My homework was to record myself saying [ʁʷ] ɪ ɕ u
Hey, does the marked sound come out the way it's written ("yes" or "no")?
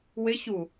no